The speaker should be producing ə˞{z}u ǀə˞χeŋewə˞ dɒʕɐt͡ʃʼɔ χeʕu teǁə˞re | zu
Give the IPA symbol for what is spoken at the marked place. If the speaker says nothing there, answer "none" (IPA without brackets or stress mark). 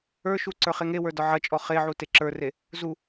ʃ